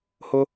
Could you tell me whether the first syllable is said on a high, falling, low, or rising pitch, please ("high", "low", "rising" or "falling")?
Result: high